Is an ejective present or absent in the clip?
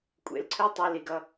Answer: present